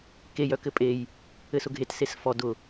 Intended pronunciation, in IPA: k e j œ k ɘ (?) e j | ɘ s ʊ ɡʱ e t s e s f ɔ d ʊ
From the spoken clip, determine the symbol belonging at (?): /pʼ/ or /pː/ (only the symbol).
pʼ